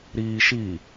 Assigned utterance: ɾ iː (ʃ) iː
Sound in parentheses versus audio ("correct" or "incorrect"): correct